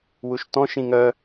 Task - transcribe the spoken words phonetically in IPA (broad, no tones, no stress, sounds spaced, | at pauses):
w u ʃ t ɔ̃ ʃ ĩ ŋ œ